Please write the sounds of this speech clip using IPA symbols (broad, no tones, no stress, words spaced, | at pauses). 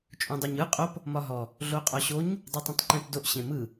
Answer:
t͡ʃʼõdˤuɲɯ qʼop | mɒɦɔ | ɮoqʼɔɕoɲ | dˤutˤũtˤǃẽpdoʔ ɕẽmɯ